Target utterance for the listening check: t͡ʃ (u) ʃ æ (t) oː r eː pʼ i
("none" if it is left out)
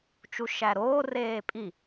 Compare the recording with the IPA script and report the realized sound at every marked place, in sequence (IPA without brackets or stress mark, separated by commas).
u, ɾ